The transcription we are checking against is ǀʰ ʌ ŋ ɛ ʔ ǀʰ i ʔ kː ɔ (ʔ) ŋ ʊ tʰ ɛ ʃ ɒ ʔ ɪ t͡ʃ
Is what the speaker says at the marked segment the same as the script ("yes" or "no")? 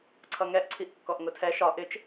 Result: yes